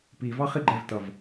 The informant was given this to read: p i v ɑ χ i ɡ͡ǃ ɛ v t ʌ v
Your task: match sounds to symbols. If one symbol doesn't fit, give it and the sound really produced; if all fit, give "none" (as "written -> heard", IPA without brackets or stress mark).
none